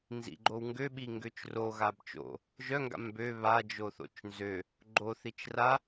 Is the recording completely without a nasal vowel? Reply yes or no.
yes